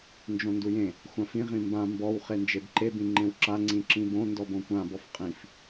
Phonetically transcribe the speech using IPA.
nd͡ʒõndujẽ | xʷãfĩ ʁĩmbã mbɔw χend͡ʒebǃe bĩŋ͡ǃẽwǁa ŋ͡ǀĩǁĩbõ ndɔbõkʷãb ɔfqʼĩf

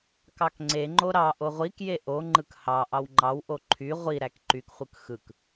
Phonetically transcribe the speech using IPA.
kɑkŋ͡ǀeŋ͡ǃo ɾɑʔo ʁʷikje ʔoŋ͡ǃɯk hɑ ʔɑwŋ͡ǃɑwʔo ǃʰy ʁʷiɾæk ǃykχʷɯk xɯk

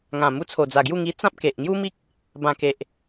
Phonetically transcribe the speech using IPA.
ŋã˨˩mu˧t͡sʰo˨˩d͡za˨˩ ɡju˥˧ŋi˧ t͡sã˦p̚ke˨ʔŋju˦mi˦k̚ | bã˨˩ke˨ʔ

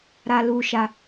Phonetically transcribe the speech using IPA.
ɾa˧lu˧ ʃa˧

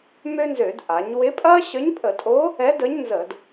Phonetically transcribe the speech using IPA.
mø˥nzø˧˩˧d ʔa˩˧ɲwɪ˧˥pʼɐ˥ ɕə˧˥ɲpʼə˧˩˧tʼo˧˥ | ɛ˧˥də˧˥ɲ nzə˧˩˧d

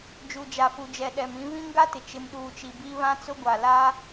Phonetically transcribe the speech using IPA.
d͡ʒu˨d͡ʒa˨fu˨d͡ʒɛ˨ ɗɛ˨mĩ˦ βĩ˦ŋɡa˦tɪ˨ t͡ʃɪ˨mɗuː˨t͡ʃi˨ bi˦ βã˦t͡sʊ˦ɡʷa˨ la˦

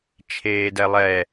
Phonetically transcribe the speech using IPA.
t͡ʃʰeːdɛlˠɛ

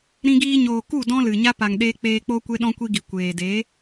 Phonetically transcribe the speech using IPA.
ɾĩ˧ɡiː˧ɲoː˨ ku˦˨ dɔ̃˦lɨ˨ɲa˦ pa˨ŋ ɗeː˦ k͡peː˧k͡po˦kʷe˦ ɗɔ̃˦kʷi˦ɡi˨ kʷeː˨ de˨˦

